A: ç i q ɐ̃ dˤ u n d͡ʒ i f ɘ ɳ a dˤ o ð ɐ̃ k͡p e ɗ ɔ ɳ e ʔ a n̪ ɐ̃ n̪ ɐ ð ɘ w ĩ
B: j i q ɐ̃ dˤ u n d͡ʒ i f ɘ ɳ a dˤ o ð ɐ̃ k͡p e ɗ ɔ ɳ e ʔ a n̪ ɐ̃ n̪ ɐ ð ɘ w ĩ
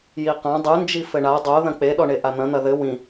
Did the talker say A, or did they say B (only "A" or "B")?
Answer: B